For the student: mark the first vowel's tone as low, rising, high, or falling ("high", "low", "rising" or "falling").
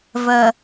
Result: low